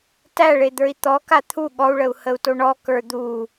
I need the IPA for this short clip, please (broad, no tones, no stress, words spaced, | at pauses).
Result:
tæɭed̪ə˞i̯ t̪ɔka t̪ʰu ɠɔu̯ɭəu̯həu̯to ɳɔkə˞ d̪u